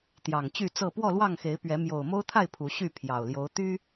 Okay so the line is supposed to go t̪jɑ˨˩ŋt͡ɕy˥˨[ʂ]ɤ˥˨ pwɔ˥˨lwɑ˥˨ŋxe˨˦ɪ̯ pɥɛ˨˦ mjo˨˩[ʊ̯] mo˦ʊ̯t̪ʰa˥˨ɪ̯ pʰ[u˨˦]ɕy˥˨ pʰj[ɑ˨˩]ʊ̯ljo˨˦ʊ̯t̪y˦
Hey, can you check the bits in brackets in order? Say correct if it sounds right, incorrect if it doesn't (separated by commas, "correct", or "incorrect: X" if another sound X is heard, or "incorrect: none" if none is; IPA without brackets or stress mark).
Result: incorrect: t͡s, correct, correct, correct